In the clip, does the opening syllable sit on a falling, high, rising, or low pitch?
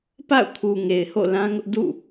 falling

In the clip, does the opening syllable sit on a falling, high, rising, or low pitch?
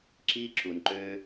high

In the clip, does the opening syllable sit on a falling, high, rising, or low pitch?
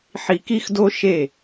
low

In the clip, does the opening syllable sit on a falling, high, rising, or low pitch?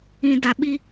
low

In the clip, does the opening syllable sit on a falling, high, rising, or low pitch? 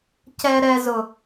low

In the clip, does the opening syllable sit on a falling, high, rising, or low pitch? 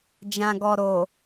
low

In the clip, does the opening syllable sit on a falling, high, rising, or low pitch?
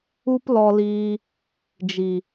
high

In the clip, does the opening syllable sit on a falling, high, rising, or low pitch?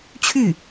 falling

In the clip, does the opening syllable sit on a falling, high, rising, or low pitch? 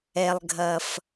low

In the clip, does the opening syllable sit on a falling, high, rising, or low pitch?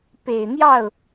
low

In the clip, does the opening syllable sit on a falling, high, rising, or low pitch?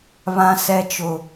high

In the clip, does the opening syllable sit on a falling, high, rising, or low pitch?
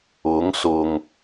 rising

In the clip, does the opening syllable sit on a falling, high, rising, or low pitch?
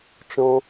high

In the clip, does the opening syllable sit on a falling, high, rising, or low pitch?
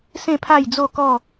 falling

